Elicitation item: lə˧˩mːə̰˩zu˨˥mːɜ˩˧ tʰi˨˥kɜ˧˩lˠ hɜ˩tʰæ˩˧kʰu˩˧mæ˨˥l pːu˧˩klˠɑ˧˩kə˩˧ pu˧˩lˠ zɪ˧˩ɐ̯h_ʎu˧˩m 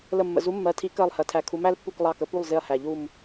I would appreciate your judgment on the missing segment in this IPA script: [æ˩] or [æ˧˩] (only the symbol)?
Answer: æ˩